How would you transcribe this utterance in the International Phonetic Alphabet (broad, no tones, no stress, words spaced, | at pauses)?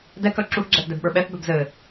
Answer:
dɛkœ ǁuθɡ͡ǁɛθdɛbɓə˞ ɓɛθbœb zɘ